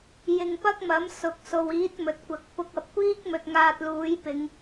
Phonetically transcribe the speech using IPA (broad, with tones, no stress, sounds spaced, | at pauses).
j ɪ˧ ŋ p ɐ˥ k̚ m ɐ˨˥ m s ʊ˨ k̚ s o˨ w iː˨˥ t̚ m ɵ˨ t̚ kʷ ɐ˨ k̚ p ʊ˧ k̚ ɐ˨ p̚ kʷ iː˥ k̚ m ɵ˨ t̚ ŋ aː˧ t̚ l uː˨˥ j p ɪ˨˧ ŋ